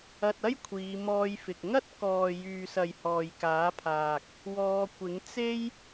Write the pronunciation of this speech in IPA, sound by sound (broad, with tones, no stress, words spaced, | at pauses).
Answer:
ɐ˧t̚ɐ˥j kʷʰiː˨˧ mɔː˧j fɪ˨k̚ ŋɐ˥t̚kɔː˨ jyː˨sɐ˨j hɔː˨jkaː˨˥pʰaː˨k̚ | wɔː˧ kʷɪ˨˥ŋ t͡se˥j